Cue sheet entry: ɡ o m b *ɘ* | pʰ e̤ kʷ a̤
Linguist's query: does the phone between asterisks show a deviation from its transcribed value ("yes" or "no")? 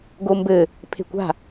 no